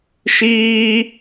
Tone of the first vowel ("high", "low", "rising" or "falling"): high